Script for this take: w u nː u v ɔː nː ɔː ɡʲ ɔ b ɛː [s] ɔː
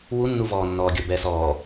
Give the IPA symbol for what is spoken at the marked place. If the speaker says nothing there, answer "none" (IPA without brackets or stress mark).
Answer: s